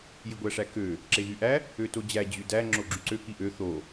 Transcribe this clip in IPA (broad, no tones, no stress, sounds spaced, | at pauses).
j i ɡʷ æ ʂ æ k ø | ǁ e ɣ y ʔ æ | ø t o d͡ʑ æ d͡ʑ y d æ ŋ͡ǁ o ɡ͡ǁ y ǀ ø k i ʔ ø θ o